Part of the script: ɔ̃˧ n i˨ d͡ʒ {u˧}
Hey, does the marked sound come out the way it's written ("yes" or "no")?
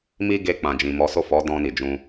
no